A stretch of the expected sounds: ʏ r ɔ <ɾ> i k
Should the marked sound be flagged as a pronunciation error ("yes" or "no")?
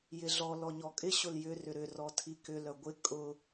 yes